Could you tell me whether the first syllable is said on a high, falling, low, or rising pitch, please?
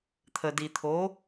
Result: low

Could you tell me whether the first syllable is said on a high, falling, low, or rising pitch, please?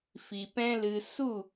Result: low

